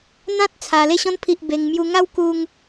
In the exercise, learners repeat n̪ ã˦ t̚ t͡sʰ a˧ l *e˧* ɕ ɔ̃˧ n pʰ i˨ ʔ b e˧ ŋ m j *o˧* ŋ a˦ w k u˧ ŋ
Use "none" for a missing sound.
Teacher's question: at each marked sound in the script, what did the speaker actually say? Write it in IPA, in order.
e˧, u˧

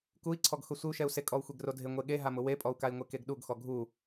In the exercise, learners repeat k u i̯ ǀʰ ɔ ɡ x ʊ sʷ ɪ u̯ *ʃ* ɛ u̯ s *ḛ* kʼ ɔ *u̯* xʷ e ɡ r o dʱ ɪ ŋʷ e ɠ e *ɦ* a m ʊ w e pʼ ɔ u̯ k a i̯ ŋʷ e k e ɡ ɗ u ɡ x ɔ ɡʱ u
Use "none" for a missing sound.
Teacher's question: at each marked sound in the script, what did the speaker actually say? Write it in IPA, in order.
ʃ, e, u̯, ɦ

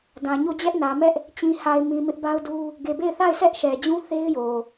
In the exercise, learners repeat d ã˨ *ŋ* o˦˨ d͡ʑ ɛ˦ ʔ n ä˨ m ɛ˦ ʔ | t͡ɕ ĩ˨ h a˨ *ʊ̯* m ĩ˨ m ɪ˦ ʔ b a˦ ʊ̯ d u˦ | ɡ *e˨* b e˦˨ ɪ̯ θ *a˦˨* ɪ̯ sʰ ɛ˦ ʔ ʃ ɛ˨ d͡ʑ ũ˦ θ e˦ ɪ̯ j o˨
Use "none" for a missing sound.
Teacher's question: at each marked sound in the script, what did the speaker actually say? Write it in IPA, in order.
ɲ, ɪ̯, e˨, a˦˨

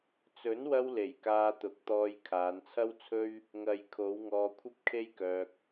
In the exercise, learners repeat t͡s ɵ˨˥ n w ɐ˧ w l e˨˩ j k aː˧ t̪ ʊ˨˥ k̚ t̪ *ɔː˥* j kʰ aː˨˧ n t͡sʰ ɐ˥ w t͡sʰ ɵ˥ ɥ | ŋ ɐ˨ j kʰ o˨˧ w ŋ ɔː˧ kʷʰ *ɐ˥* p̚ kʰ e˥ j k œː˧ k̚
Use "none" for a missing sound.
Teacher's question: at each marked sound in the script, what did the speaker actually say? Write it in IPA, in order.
ɔː˧, ɐ˥

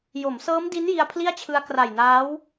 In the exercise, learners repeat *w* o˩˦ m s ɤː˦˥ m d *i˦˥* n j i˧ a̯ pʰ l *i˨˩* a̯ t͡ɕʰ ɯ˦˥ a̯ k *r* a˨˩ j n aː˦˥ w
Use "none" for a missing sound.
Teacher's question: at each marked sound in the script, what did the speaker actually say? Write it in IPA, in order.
j, i˦˥, i˥˩, r

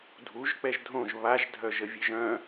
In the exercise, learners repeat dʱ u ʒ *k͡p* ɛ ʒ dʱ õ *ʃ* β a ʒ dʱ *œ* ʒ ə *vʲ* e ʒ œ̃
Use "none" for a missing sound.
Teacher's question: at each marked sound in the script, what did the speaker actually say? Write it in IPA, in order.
k͡p, ʒ, œ, vʲ

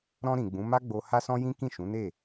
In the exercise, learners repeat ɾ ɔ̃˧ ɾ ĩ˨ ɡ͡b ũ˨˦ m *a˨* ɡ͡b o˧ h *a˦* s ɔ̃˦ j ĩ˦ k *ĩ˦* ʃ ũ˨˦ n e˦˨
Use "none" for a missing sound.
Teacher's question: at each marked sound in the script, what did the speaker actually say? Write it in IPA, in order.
a˦, a˦, ĩ˦˨

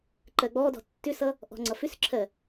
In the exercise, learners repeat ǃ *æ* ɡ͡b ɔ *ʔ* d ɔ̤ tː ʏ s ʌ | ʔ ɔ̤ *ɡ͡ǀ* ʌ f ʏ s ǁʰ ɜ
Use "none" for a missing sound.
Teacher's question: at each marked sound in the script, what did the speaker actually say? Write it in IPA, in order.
ɜ, none, ŋ͡ǀ

